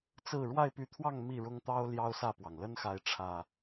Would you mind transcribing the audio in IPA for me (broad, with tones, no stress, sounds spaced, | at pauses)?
t͡s ɹ̩˥˨ ɻ w a˥˨ ɪ̯ p y˨˦ t̪ʰ w ɑ˥˨ ŋ m i˥˨ ɻ ʊ˦ ŋ t̪ ɑ˦ ʊ̯ l j ɑ˦ ʊ̯ s ä˥˨ p w ɑ˩ ŋ l ə˦ n x a˨˦ ɪ̯ ʈ͡ʂʰ ä˨˩